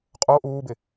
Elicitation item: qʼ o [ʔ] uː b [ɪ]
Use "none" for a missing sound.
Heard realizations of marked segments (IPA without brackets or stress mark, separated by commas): ʔ, ɪ